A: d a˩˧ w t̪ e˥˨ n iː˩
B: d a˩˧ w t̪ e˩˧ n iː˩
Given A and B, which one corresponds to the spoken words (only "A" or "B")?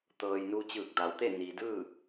A